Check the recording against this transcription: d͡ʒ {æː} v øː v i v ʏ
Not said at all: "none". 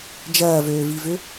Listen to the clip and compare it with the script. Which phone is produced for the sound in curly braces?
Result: ɐː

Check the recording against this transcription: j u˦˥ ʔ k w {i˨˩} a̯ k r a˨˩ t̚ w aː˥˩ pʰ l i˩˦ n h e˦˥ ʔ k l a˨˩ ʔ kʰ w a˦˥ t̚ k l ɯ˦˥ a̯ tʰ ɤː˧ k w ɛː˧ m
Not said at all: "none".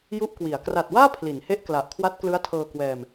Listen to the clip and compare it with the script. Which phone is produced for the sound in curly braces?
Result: i˩˦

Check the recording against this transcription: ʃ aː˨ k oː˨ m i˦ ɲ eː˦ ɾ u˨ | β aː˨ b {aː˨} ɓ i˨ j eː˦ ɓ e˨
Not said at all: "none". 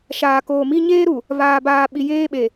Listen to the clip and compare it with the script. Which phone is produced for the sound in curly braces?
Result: aː˨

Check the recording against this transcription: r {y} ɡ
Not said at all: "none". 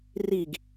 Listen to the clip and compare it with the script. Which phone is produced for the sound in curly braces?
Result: i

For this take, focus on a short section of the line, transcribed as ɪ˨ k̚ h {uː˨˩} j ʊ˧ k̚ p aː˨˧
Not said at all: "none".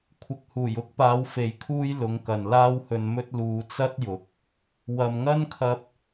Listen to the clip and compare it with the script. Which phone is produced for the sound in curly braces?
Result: uː˨˩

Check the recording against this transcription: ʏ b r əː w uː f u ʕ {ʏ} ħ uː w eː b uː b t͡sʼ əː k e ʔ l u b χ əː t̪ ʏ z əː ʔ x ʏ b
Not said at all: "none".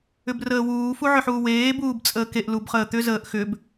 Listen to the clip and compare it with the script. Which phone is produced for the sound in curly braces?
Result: ʏ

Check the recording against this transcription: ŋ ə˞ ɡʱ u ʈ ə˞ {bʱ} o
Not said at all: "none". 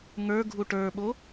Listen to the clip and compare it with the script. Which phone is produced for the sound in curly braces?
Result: ɓ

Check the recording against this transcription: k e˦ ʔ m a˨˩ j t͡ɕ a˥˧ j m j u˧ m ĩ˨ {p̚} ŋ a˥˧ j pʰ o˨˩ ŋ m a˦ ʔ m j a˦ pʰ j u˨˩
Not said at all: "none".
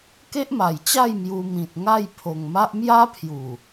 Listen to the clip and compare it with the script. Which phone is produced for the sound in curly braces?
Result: t̚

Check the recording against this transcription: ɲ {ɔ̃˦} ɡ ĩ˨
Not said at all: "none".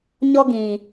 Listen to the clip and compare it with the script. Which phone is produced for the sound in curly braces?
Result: ɔ˦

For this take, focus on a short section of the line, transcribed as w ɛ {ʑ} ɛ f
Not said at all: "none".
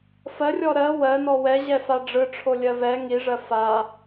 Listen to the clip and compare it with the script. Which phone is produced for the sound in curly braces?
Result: ʑ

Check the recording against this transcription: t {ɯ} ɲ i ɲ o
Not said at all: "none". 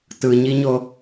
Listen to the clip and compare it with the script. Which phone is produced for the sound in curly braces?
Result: ɯ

